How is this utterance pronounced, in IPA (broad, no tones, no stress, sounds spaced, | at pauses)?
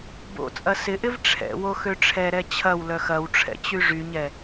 b o̰ t͡sʼ ɐ s ɪ ʔ ɪ v ʈ͡ʂʰ ɛ̰ w o x ø ʈ͡ʂʰ ɛ ɾ ɛ t͡ɕʰ ɐ w l œ x ɐ w ʈ͡ʂʰ ɛ̰ t͡ɕ y ʐ y ɲ ɛ